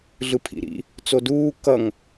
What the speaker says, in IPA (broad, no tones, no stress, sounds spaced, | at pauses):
ɮ ɯ pʰ ḭ ɾ ḭ | t͡s o d uː k ʌ ŋ